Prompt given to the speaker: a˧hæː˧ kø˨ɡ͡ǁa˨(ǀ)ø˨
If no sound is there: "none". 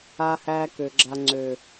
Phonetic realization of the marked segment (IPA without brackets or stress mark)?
ŋ͡ǀ